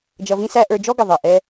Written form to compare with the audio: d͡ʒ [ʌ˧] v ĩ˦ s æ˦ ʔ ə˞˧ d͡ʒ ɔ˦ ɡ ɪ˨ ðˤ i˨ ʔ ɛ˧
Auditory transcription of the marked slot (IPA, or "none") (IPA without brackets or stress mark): ʌ˧